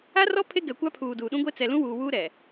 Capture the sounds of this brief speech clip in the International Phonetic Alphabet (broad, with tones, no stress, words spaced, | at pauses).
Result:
a˦rɔ˦ pʰe˦ɡɛ˨kʷa˦pʰuː˨ duː˨ɗũ˦ɡʷe˦ t͡sɛ˨lũ˦wuː˨wuː˦ ɾɛ˨